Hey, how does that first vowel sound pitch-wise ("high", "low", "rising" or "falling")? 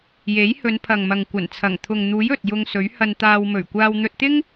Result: rising